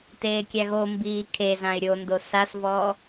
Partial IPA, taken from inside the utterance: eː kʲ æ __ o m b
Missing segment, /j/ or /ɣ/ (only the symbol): ɣ